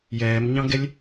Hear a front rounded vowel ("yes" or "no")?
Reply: no